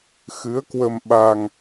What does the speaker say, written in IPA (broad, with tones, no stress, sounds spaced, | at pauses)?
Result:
x ɨ˨˦ ə̯ k w ə˧ m ɓ a˧ ŋ